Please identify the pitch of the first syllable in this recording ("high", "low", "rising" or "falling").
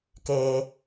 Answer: low